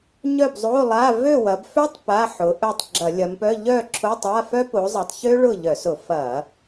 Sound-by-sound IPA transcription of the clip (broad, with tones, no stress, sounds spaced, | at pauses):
ɲ œ˥˨ b zˤ o˧˥˧ lˠ a˧˥˧ v ø˥˨ w ɐ˨˦ b f ø˥ tˤ p a˧˥˧ ħ ʊ˨˦ ʔ œ˥˨ tˤ ɡ͡ǁ ɐ˧˩˧ lʲ ɐ˨˦ m p œ˧˥˧ ʎ œ˥˨ ǁʰ ʊ˧˥˧ tˤ a˧˥˧ f œ˥ p o˨˦ zˤ ɐ˨˦ tˤ ç ø˥ ɭ ʊ˥˨ ʎ œ˧˩˧ s ʊ˧˩˧ f ɐ˧˩˧